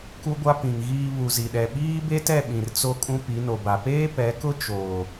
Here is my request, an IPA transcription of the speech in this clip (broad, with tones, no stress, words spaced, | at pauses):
ku˦ɡʷa˦pĩ˨ŋ ɣiː˨ βu˨zi˨ɗɛ˨ ɓiː˦be˦tɛ˦˨ ɓĩ˨rt͡so˦kʼũ˦ pi˨˦no˨ba˨ peː˦pɛ˨˦kʊ˦ t͡ʃoː˨